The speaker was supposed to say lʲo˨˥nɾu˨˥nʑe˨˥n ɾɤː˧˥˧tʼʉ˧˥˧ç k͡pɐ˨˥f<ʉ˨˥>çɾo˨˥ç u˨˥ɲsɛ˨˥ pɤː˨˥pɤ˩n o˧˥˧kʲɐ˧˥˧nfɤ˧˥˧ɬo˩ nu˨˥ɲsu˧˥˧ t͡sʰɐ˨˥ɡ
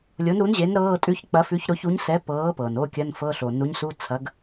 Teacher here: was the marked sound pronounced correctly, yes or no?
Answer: yes